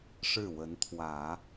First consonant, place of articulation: retroflex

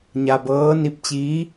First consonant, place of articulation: palatal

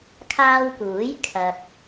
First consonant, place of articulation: velar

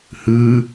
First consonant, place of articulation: glottal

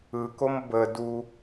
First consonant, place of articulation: velar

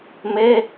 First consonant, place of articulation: labial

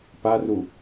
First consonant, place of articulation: labial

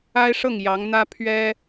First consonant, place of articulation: retroflex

